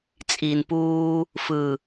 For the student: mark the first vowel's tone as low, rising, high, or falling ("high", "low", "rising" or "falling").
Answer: low